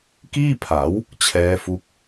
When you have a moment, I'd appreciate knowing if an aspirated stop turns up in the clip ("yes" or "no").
yes